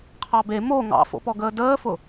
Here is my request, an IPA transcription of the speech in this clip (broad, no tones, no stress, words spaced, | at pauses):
qʰɑbe mo ŋɑ̰fo̰pɔɡəː dəːfʊ